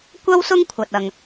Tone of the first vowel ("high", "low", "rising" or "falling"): high